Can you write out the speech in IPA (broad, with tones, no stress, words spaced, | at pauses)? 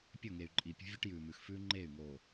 pʲɵ˦˨ŋe˨y̯ ǃʼi˨pʲṳ˦ vʲu˦ʈjʉː˨mʉ˨x fʉː˦ŋ͡ǃeː˦˨y̯ ŋoː˨